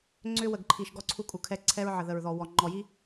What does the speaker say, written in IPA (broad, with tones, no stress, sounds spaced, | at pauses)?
ŋ͡ǀ ʏ˦ w ə˨ ɡ ǃʰ i˨ ʃ ɡ ɔ˦ ǀʰ u˦ kʼ u˨ kʰ ɛ˦ ǀʰ ɛ˦ ɹ ʕ ə˨ ð ə˨ ɹ ð ɔ˨ w ɔ˨ ŋ͡ǃ ɔ˨ j i˦